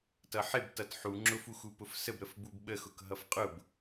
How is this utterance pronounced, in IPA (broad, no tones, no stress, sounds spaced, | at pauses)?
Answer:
t ʌ ħ ɪ b t ʌ t ħ u ŋ͡ǁ ʊ f u x u p ʊ f s ə b ɾ ə f b u b ɓ ə x ʊ k ɦ ʌ f qʼ ʊ b